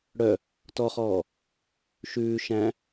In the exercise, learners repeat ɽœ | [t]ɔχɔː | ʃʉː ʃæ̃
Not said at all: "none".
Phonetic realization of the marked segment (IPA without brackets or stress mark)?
t